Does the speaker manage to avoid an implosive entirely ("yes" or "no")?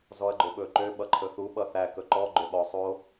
no